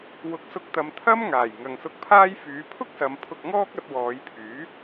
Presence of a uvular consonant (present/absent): absent